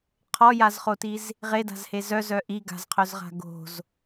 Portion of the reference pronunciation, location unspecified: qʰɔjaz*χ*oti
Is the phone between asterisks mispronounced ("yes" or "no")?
no